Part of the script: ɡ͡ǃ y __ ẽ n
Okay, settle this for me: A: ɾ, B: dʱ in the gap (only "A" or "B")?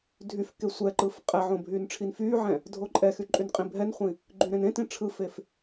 A